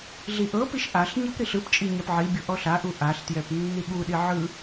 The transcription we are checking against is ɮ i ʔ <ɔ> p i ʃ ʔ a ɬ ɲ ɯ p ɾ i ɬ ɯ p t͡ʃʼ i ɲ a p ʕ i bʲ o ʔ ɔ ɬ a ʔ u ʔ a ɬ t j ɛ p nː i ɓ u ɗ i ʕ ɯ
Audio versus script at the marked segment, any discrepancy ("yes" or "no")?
yes